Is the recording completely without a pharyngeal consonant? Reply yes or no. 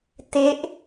yes